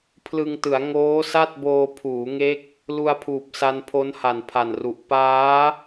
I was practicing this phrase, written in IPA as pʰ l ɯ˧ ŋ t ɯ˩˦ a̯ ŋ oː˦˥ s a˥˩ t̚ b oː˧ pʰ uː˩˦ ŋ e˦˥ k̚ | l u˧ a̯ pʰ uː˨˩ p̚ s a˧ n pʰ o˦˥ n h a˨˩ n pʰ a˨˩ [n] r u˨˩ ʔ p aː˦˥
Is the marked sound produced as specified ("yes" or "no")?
yes